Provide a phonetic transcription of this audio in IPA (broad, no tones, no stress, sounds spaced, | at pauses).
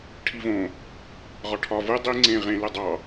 ʈʰ i v õ | ʁ ɒ ʈʰ ɒ v ɯ dˤ i ŋ͡ǀ ẽ ʁ ẽ l ɯ dˤ ɑ